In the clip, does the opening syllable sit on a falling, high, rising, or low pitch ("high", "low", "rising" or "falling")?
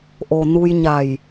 low